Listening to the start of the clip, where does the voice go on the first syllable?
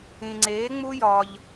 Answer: low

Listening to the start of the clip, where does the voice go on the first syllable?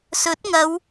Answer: rising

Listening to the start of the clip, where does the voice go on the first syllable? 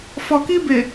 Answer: low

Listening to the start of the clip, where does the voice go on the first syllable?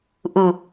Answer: low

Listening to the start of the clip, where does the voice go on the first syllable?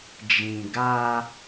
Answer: low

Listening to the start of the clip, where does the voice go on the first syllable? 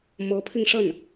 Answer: rising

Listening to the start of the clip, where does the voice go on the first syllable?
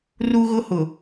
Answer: high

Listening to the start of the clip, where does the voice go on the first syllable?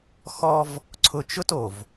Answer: high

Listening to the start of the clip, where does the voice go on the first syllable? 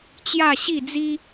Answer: falling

